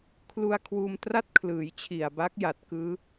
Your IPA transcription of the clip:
kʰ l u˧ a̯ kʰ w uː˧ m t r a˥˩ t̚ kʰ l ɯː˩˦ j t͡ɕʰ i˨˩ a̯ b a˦˥ k̚ j a˨˩ t̚ k ɯː˦˥

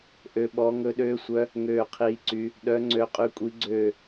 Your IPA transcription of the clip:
ʔ ø˦˥ ɓ ɔ˦˥ ŋ ɵ˦˥ ɗ øː˦˥ sʷ œ˦˥ | ŋ øː˥˧ qʰ iː˦˥ ǀ y˦˥ | ɗ œ˦˥ ŋ͡ǀ ø˦˥ qʼ y˦˥ kʷʼ i˦˥ ɡ͡ǀ øː˥˧

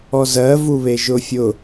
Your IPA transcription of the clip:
ɔ z ɜ v u β e ʒ ʊ fʲ ʊ

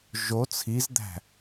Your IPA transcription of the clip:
ʒ o t͡sʰ i z d̪ æ̤

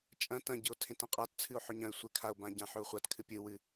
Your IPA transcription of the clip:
t͡ʃʼ ɐ̃ t ɐ̃ ɟ ɨ o̯ tʰ ẽ t ã qʼ a t t͡sʰ ɨ o̯ ħ ɵ ɲ ɐ̃ e̯ sʷ e kʰ a o̯ b ã ɟ ã ħ ɵ o̯ χʷ a t kʰ ɨ pʲ ɨ w ɨ

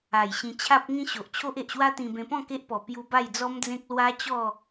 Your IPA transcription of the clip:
a˨˩ j ɕ ĩ˧ t͡ɕʰ a˦ p̚ ŋ ĩ˦ ɕ o˨ ʔ t͡ɕʰ o˦ ʔ e˨ ʔ ɕ w a˦ t̪ ĩ˧ b ẽ˧ p ɔ̃˥˧ k e˦ ʔ p ɔ˨˩ p j u˧ b a˥˧ j d͡z ɔ˦ m d͡z ẽ˦ k̚ l w a˦ t͡ɕ ɔ˥˧

